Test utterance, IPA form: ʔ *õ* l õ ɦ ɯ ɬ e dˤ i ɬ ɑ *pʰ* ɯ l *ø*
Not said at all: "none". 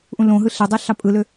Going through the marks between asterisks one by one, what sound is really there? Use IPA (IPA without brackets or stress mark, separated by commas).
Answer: ũ, pʼ, ø